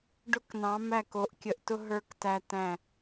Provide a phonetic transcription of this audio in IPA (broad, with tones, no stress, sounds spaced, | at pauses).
ɖ ʊ˧ k n ɑ̃˩˧ m æ˧˩ k o˩˧ ʔ kʲ ə˩˧ ʔ t ʊ˧ ɦ ə˞˧ k t æ˧ t æ̃˧˩